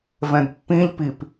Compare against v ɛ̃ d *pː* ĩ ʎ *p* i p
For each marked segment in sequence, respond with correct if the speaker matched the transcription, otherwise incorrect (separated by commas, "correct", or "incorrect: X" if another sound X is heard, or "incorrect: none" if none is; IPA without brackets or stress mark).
correct, correct